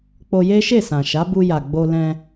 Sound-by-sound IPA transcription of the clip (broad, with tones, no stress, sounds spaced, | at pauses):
k͡p o˧ j e˦ ʃ e˦˨ s ã˨ ʃ a˨˦ b u˧ j a˨ ɡ͡b o˧ l ɛ̃˧